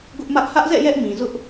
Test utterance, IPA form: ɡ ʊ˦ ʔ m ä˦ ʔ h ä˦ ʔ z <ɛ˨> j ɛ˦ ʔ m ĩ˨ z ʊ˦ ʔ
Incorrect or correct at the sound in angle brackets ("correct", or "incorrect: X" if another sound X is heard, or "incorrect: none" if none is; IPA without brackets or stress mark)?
incorrect: ɛ̰˦˨